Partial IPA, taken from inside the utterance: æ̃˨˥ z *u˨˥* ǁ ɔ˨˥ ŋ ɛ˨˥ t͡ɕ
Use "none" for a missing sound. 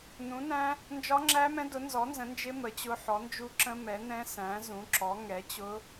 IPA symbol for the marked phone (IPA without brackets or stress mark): ũ˨˥